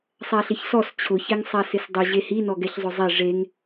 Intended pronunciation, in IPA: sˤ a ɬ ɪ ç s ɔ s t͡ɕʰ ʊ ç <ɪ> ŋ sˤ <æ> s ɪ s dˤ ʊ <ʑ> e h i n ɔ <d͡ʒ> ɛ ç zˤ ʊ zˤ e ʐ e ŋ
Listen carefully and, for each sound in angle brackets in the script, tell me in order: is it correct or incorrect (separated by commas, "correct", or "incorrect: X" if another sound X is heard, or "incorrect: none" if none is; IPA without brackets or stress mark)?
incorrect: ɛ, incorrect: a, correct, incorrect: ɡ